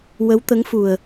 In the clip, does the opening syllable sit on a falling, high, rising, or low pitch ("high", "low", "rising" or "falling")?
rising